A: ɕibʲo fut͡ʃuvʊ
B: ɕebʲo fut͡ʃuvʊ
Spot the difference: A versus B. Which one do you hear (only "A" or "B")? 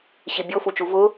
A